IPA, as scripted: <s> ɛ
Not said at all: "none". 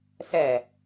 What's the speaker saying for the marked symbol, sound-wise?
s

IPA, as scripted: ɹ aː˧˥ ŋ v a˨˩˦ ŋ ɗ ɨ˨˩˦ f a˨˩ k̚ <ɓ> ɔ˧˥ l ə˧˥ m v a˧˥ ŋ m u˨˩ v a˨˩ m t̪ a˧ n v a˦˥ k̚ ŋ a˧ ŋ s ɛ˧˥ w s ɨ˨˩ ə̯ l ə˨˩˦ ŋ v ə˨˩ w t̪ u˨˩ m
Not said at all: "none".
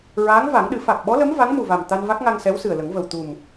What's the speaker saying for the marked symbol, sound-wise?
ɓ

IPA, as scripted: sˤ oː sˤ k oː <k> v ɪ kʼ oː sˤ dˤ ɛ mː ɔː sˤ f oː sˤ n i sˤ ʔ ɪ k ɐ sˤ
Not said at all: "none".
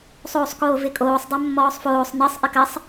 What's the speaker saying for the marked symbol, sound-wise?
none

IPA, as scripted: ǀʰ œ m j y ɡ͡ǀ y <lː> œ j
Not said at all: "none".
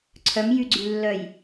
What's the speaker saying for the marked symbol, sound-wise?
lː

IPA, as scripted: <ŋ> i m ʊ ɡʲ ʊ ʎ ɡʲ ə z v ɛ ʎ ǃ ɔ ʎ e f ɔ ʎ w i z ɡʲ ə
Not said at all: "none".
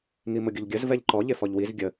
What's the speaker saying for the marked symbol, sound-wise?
ŋ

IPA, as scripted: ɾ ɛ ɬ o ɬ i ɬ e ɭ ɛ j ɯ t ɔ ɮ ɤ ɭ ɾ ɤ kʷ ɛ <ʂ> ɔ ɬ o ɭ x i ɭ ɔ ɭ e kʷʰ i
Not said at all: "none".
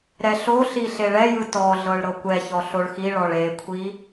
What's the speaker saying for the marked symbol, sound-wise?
ç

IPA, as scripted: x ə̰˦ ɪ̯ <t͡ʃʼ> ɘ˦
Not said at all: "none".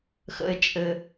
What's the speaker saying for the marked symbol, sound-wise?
t͡ʃʼ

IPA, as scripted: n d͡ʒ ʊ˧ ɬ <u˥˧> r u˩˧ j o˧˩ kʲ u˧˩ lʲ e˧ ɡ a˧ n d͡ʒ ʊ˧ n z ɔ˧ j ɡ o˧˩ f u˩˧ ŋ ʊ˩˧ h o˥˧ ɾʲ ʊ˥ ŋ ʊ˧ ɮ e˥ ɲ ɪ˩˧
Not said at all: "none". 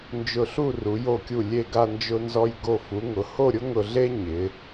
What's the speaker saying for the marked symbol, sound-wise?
u˥˧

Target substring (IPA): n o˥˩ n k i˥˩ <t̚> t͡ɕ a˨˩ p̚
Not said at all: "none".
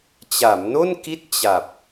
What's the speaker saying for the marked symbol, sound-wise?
t̚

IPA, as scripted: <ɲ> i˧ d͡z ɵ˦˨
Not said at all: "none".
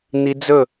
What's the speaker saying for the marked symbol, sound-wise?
n̪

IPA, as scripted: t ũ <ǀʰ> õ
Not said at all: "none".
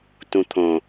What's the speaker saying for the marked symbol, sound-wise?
t̪ʰ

